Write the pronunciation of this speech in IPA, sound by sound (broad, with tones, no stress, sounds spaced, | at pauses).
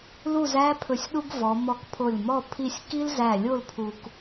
l u˥˧ z æ˥ pʰ ɵ˧˩ sʲ ɗ u˥ ɡ v ɔ˩˧ m ɔ˧˩ k pʰ o˧˩ lʲ m ɔ˥˧ pʰ i˥˧ sʲ k i˥ l z æ˧˩ lʲ o˥˧ l pʰ u˧ k